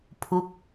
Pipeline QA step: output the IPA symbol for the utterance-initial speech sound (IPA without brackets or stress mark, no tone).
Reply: pʰ